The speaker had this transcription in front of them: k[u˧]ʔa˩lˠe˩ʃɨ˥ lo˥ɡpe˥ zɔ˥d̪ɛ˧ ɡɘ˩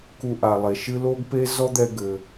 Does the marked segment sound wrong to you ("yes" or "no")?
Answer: no